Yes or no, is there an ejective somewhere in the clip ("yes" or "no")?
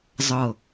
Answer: no